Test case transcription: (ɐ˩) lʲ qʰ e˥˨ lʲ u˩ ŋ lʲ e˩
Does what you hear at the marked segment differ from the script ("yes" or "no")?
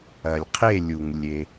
no